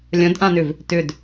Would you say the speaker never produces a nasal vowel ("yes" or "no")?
no